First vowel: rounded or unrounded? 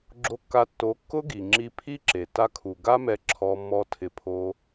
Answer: rounded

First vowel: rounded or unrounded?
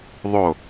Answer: rounded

